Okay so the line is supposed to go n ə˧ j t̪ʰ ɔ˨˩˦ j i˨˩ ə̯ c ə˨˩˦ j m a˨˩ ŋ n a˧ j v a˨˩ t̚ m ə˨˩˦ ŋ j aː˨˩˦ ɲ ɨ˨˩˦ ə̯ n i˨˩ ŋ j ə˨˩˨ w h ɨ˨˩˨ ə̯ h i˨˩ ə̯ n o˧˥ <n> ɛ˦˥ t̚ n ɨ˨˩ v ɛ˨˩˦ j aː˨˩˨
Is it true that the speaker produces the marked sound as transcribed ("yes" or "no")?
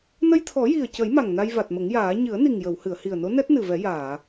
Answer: yes